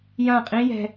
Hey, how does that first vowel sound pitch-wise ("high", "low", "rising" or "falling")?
falling